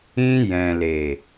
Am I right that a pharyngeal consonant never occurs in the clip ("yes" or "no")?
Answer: yes